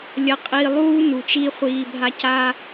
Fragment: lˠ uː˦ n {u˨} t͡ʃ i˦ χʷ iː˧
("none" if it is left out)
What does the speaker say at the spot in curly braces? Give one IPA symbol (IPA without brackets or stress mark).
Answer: u˨